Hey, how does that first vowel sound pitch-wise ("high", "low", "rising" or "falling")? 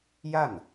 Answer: falling